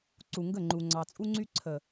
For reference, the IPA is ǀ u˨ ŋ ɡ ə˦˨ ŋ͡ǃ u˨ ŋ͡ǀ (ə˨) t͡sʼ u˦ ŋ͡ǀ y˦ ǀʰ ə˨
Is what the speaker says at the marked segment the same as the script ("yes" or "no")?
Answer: no